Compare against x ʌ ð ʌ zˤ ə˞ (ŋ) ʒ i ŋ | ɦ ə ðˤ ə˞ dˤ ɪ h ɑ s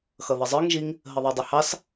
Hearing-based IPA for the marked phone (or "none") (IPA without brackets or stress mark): ŋ